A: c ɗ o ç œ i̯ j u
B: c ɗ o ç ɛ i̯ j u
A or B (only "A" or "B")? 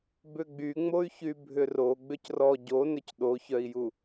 A